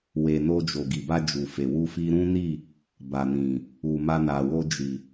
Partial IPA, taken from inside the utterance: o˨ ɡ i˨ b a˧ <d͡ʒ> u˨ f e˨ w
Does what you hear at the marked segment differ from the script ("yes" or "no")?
no